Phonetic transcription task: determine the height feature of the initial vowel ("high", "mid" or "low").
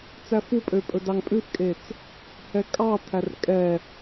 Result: low